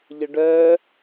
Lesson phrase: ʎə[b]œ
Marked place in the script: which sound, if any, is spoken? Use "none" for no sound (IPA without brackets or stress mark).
ɖ